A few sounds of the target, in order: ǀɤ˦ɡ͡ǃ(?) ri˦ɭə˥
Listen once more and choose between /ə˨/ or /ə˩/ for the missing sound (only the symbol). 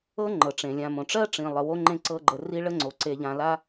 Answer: ə˨